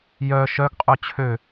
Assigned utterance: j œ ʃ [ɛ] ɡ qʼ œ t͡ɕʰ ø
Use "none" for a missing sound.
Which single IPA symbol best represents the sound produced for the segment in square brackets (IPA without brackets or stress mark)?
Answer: œ